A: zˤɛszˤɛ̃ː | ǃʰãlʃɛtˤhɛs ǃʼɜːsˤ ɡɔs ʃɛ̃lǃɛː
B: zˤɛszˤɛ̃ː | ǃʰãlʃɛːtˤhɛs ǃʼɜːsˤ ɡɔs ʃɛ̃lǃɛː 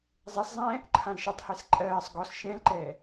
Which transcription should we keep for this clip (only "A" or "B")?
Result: A